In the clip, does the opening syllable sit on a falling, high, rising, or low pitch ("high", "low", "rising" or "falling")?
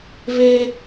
high